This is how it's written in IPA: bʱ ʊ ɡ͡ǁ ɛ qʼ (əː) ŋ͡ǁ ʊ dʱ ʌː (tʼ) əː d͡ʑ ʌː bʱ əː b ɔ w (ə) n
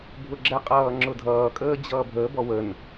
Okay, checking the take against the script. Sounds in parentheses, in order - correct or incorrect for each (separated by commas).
incorrect, incorrect, correct